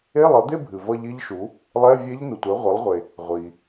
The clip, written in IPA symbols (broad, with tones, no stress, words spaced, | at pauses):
e˧˥˧lˠʌ˩˥d̪e˥˧bʱɨ˩ vʌ˥˧ʎi˦˥ʎʃu˩˥ | lˠɛ˧˥˧vʲe˦˥ʎ nu˩tʷɛ˩˥ʁʷe˩˥lˠʁʷe˩ | ʁʷi˩